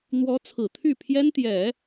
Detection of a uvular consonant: absent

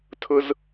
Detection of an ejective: absent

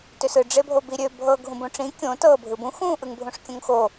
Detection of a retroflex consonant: present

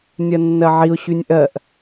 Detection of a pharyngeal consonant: present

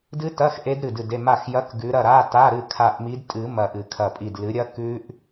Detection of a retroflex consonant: absent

